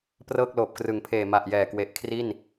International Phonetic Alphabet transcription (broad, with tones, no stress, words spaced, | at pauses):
prɤː˥˩k̚loː˨˩p̚krɯ˩˦ŋpʰeː˨˩ ma˨˩ʔjɛː˨˩kwe˨˩ʔ kʰri˥˩n